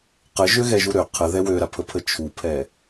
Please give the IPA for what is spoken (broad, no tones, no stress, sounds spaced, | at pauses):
q ə ʒ ø ɣ ɛ ʒ u ɾ ø qʰ ə ð ɛ w ø ɾ a pʰ ə pʰ ə t͡ʃʰ u pʰ ɛ